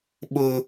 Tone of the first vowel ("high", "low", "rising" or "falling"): high